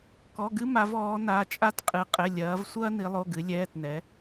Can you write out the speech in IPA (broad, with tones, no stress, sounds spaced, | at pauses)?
k ɔ˩˧˩ ɡ ɨ˦ m a˩˧ v ɔː˩˧ n a˩˧˩ t͡ʃʼ a˦ t qʼ ɨ˩˧ qʼ ɘ˩˧˩ lʲ ɐː˩˧ v sʷ ɐː˦ n i˩˧ lˠ o˩˧˩ ɡ ɨ˩˧ lʲ ɛː˩˧˩ t n ɛ˩˧